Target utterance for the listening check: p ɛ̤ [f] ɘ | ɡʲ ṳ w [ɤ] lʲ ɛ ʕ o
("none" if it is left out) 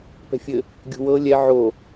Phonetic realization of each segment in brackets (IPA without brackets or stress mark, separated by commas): fʲ, ɤ